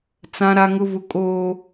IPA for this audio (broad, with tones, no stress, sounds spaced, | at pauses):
t͡s ã˦ ɾ a˦ ŋ ʊ˦ v ʊ˦ kʼ oː˦